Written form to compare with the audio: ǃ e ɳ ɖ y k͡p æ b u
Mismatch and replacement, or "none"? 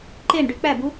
none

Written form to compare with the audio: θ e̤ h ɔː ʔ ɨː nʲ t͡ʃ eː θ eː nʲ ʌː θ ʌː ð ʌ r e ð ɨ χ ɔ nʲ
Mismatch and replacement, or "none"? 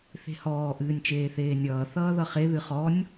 r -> χ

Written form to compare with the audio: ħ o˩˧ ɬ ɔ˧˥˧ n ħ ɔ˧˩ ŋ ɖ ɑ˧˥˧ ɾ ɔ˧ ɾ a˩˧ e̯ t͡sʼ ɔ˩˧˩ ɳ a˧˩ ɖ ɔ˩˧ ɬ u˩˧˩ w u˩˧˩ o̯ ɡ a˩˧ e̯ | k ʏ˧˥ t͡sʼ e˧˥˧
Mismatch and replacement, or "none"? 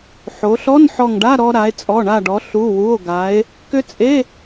ɑ˧˥˧ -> a˧˥˧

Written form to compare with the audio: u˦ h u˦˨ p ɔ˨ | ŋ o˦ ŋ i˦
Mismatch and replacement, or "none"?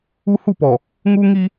o˦ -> u˦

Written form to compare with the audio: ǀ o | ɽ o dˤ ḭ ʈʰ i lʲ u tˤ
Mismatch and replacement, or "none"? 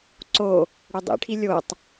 u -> o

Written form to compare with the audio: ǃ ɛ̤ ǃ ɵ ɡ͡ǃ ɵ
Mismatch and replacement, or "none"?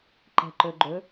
none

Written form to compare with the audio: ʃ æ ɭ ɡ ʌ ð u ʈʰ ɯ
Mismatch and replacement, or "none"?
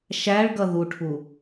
ɯ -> u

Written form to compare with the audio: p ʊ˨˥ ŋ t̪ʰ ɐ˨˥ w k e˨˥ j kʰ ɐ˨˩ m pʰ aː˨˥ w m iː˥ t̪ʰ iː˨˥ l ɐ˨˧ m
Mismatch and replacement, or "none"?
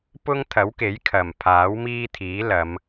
ʊ˨˥ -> ʊ˥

